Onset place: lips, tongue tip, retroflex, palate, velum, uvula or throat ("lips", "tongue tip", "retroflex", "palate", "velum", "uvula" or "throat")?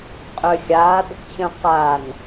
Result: uvula